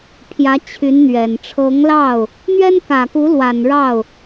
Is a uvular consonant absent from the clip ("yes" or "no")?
yes